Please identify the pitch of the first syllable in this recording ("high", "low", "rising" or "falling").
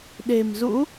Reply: low